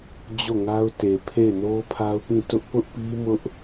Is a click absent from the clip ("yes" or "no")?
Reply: yes